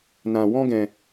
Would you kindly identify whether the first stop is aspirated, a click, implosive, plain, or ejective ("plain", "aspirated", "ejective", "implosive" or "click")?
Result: plain